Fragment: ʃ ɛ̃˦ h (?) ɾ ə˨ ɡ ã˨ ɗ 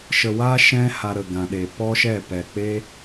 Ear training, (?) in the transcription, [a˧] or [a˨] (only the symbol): a˧